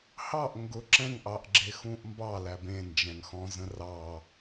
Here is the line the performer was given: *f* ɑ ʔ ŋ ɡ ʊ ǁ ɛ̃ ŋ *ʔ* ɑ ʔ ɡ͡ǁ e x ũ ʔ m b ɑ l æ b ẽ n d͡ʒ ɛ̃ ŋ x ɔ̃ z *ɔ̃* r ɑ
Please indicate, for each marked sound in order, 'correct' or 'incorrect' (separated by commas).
incorrect, correct, incorrect